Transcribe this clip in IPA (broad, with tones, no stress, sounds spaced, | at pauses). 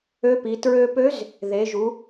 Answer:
ø˧˥ p i˩˧ t ɹ ø˧ p ø˧˥ z | ð e˩˧ ʒ u˩˧